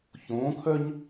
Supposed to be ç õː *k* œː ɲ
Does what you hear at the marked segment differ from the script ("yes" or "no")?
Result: yes